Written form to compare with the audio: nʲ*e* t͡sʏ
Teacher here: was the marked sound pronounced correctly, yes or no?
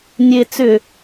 yes